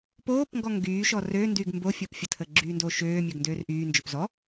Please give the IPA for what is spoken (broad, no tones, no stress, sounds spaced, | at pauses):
p oː p ŋ ɡ ɔ ŋ ɡ yː ʃ ɔ r ø n d y ɡ m b o fʲ əː p fʲ ə tʰ əː ɡ͡ǁ yː n d oː ʃ øː mʲ ø ɡ n d øː r ʔ yː n d͡ʒ ø p z ɔ